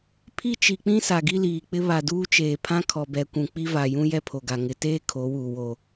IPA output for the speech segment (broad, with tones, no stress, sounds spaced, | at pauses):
pʰ i˦ t͡ʃ i˨ k͡p ĩ˦ s a˨ ɡ i˦ l iː˨ k͡p ɪ˦ β a˨ d uː˦ t͡ʃ eː˨ pʰ ã˦ kʰ ɔ˨ b ɛ˨ kʷ ũ˨ k͡p i˦ v a˨ j ũ˦ j ɛ˦ pʰ o˨ ɡ a˨ ŋ ɪ˨ t eː˦ kʰ o˨˦ w uː˨ w o˨